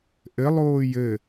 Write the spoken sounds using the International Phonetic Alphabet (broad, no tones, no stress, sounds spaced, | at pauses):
ʔ ɘ lˠ oː j ɘ